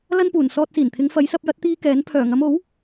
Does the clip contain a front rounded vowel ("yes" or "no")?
yes